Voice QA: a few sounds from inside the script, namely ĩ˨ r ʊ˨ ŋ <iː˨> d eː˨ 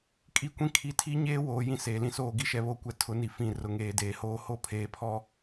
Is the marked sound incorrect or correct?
incorrect